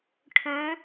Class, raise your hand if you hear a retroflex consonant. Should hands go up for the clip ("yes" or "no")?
yes